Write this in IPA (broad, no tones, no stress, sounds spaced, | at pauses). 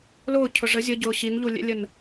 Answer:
l ʊː cʰ ʊ ʐ ə zʲ ə ɟ ʊː ɕ i n ʎ u lʲ ɛ̰ lʲ ə n